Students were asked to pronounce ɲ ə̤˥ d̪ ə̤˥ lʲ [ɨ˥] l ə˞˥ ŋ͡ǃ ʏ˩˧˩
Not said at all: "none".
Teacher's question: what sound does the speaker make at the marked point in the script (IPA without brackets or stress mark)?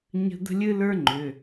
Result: ɨ˥